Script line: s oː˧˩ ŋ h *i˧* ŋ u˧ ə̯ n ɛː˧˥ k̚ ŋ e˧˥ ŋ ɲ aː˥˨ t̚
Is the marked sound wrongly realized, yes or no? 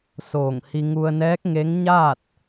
no